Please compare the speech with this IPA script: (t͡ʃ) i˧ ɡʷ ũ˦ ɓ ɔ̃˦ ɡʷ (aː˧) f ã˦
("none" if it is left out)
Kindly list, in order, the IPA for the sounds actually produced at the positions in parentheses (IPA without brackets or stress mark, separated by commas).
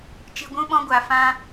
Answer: t͡ʃ, a˧